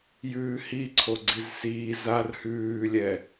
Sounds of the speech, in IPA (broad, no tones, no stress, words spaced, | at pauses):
jʉːhiǀʰoɡ͡ǀiz siː zar hʉːlʲɛ